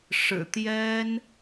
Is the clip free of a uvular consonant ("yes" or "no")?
yes